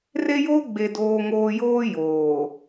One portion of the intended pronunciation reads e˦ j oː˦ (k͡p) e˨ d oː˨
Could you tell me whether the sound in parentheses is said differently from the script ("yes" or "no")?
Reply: yes